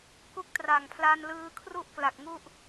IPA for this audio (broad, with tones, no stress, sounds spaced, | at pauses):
k u˦˥ k̚ t r a˨˩ ŋ pʰ l a˧ n l ɯː˧ kʰ r u˥˩ ʔ k l a˨˩ k̚ ŋ u˥˩ ʔ